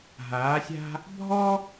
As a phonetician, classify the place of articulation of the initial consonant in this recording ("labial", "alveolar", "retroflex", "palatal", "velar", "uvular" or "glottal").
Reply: glottal